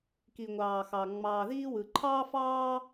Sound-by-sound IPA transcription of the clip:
ki˩ŋʷɑː˩xɑ˩ ŋ͡mɑː˩ðiː˥wɯ˩ ǃʰɑː˥fɑː˥

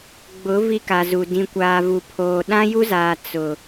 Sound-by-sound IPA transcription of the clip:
ɡ͡bʊ˨˦ vi˦ka˨zu˨ dĩ˨kʷaː˨vu˨pʰoː˨ ɗã˦ju˦zaː˨ t͡sʊ˨

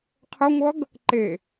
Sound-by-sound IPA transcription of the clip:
qʰəŋʷʌɡ | ǃe

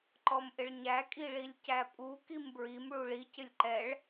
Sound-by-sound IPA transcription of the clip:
ǃɔmʔɪɭɲæ kʼiɭilʲcæpʼu kimbɹim ɭuɭi cɪlʲǃɛɭ

